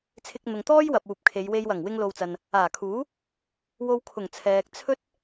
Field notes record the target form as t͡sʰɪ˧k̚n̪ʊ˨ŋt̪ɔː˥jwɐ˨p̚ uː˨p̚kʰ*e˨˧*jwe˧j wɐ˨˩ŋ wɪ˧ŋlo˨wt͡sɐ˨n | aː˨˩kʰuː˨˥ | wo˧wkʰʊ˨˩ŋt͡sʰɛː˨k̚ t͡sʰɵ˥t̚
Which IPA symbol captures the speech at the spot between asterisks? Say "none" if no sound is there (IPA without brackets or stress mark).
e˨˧